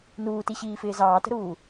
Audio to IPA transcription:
n uː t i ɕ iː f ɪː z ɑː t ə̤ ɾ uː

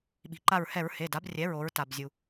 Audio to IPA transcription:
ɓ i̤˩ ǃ a˧˩ ɹ h ɛ˧˩˧ ɹ h e˩˧˩ d a˩˥ b rʲ ɛ˩˥ ɹ o˩˧ ɹ t a˩ b zʲ u˩

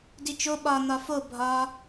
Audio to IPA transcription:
d i t͡ʃ o ɓ ɒ n̪ ɒ f o bʱ ɒ

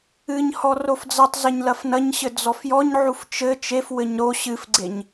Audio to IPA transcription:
ɨ ɲ h ɔ r o f d͡z ɐ tˤ z ɐ ɲ l ɐ f n ɐ ɲ ɕ ɘ d͡z ɔ f j ɔ ɲ ʕ u f t͡ʃ ɘ t͡ʃ e f w ɘ ɲ ɾ o ɕ ɨ f ɡ͡ǀ e ɲ

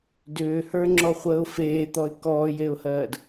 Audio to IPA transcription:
d ʏː h ə˞ ŋ͡ǁ ɔ χʷ əː ʊ̯ f eː t̪ ɔ ɪ̯ k ɔː j e ʊ̯ h ɜː d

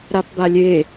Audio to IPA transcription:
ɾ a p b a lʲ e

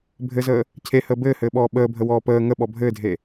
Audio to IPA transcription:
bʱ ɘ z əː | cʰ e h əː b ɘː h ɘː ɓ ɔː ɓ əː bʱ ə w ɔː p əː ŋ ə ɓ ɔ bʱ ɘː dʱ e

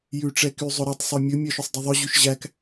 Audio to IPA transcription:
j ʉ ʈ͡ʂ ɛ k y zˤ ɵ ɾ ɵ tˤ sˤ œ mʲ ɵ mʲ œ ʃ œ sˤ dˤ o ðˤ œ ʑ ʉ ʃ ʑ æ k

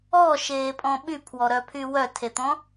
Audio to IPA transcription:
ɔ ʃ eː pʼ ɔ̃ ɓ y pʰ w ɔ ɾ œ pʰ y w œ tʰ e t̪ ɔ̃

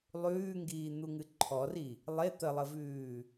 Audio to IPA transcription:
lˠ ʉː ŋ ɡ iː n̪ u ŋ ɨ ǃʰ ɔ r i | lˠ e t̪ ə lˠ ə v ʉː

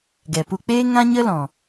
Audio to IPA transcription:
ɡ ɛ˨ p u˧ k͡p eː˦ ŋ ã˦ ɲ ə˦ l ɔ̃˨

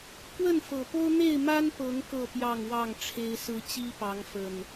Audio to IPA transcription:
k w ə˥˨ n f ɤ˨˩ p o˦ ʊ̯ n̪ e˥˨ ɪ̯ m a˦ n p ɤ˨˦ ŋ k ɤ˥˨ p j ɑ˥˨ ŋ w ɑ˥˨ ŋ ʈ͡ʂʰ e˦ ɪ̯ s ɹ̩˦ t͡ɕ i˦ p ɑ˨˦ ŋ f ə˨˩ n

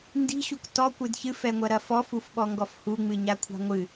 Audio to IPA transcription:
n d i̤ ɕ u k t ɔ kʷ ɨ d ç ɨ f ɛ ŋʷ ɐ ɾ ɐ f ɔ f u f ɓ ɔ ŋ ɡ ɔ f h u ŋ͡m ɨ ɲ a kʷʰ a̤ ŋʷ ɨ

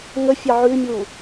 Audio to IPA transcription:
ŋ ə fʲ ɑ ʕ ʉ mʲ u

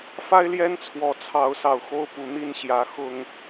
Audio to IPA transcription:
f a˦ ɪ̯ l j ɛ˦ n t͡sʰ w ɔ˨˩ t͡sʰ ɑ˨˦ ʊ̯ s ɑ˨˩ ʊ̯ x o˥˨ ʊ̯ p u˨˦ n̪ i˥˨ n ɕ j ä˨˦ x ʊ˨˩ ŋ

